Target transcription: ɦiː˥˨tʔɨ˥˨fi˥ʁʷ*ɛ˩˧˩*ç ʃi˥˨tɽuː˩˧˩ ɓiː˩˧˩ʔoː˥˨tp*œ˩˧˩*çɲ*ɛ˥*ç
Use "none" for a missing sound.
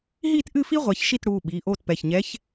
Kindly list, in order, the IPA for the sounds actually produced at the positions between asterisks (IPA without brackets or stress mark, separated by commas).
ɛ˩˧˩, ɛ˩˧˩, ɛ˧˥